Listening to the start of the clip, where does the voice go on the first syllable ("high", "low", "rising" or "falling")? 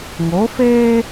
rising